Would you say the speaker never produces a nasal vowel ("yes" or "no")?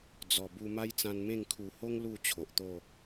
no